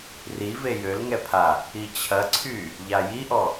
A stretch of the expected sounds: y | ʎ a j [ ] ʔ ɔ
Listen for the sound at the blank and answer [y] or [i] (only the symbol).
i